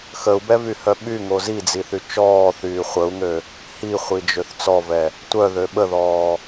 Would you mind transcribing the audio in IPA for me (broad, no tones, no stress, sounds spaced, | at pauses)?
x ə u̯ b ɛ v y h œ ɓ y ŋ o z i d͡z i θ y t͡ʃ ɔː θ yː χʷ ə u̯ ŋ ø | h i χʷ i d͡ʒ ø θ t͡s ɔ v ɛ | tʷ œ ð ø ɓ ə ð ɔː